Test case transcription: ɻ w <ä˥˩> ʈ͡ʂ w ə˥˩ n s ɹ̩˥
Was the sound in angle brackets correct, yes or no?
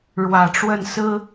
no